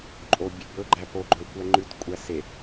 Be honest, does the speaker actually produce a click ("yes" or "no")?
yes